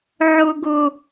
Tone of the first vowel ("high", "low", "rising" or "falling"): high